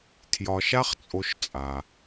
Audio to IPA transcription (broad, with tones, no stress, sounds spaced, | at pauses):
tʰ j ɒ˧ ʃ a˥ χ t͡sʼ o˧ ʃ t͡sʼ a˩